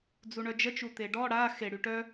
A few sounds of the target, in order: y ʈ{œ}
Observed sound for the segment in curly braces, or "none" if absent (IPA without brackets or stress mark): œ